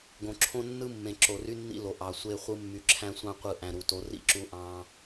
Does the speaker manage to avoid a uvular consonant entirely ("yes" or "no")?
no